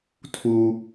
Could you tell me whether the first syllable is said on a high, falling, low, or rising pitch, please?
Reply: high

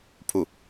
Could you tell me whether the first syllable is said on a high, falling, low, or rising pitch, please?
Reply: falling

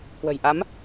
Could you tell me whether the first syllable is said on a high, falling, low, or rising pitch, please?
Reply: low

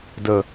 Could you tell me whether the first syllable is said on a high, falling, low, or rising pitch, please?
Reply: low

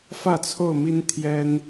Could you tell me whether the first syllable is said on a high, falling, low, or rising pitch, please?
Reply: falling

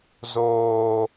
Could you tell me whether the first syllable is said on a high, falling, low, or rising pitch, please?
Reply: low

